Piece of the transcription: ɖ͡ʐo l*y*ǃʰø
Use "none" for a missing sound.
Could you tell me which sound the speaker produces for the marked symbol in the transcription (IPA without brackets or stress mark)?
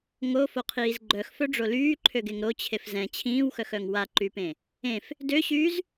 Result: yː